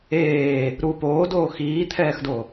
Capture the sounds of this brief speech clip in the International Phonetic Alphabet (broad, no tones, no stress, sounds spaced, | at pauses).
eː | ɾ u p oː d oː x iː t̪ʰ ɛː x d o